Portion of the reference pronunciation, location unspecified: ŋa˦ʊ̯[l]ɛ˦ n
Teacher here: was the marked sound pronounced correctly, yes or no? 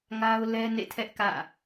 yes